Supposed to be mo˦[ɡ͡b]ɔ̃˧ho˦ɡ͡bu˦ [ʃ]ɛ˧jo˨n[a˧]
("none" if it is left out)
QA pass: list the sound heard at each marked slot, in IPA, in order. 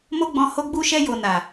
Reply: ɡ͡b, ʃ, a˨

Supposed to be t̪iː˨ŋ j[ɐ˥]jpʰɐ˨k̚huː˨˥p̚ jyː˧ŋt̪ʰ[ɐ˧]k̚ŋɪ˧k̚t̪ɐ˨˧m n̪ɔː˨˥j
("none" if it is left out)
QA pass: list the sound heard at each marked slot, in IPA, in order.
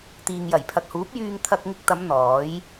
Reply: ɐ˨˩, ɐ˧

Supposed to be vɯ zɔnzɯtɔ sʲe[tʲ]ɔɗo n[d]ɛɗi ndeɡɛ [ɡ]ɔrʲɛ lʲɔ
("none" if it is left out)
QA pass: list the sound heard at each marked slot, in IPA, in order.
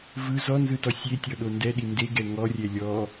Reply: tʲ, d, ŋ

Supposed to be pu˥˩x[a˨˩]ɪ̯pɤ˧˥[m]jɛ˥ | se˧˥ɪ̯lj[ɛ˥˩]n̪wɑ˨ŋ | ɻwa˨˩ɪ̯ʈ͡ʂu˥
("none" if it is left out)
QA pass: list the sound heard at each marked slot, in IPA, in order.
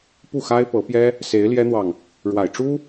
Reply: a˥, p, ɛ˥

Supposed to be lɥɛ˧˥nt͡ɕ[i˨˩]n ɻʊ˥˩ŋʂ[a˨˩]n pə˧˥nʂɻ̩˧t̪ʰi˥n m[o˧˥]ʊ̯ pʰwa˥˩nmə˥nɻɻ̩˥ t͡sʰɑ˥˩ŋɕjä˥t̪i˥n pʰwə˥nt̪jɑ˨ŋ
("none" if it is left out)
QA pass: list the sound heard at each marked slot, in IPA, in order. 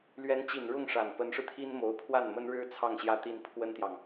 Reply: i˨˩, a˨˩, o˧˥

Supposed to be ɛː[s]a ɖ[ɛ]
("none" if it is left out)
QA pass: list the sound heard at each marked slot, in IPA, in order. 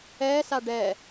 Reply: s, ɛ

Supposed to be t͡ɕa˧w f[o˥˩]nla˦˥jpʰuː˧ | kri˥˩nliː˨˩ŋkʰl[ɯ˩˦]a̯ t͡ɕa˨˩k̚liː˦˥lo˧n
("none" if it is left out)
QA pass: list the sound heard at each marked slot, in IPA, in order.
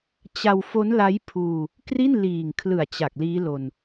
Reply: o˦˥, ɯ˨˩

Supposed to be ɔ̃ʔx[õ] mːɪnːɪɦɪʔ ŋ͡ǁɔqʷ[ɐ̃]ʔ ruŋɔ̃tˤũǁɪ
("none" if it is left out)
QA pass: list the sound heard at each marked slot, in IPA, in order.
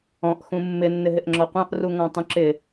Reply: ũ, ɑ̃

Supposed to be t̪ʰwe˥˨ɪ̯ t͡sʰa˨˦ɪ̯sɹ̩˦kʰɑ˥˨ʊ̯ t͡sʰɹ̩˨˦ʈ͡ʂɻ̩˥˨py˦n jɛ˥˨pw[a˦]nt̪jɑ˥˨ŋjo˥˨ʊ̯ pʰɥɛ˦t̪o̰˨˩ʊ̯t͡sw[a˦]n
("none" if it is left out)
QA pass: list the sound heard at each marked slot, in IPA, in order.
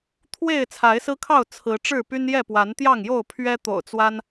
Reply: a˨˦, a˦

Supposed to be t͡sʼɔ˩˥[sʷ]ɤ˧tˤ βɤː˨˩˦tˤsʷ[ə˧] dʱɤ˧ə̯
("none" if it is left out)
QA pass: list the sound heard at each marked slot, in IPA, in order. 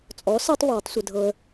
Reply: s, ə˧

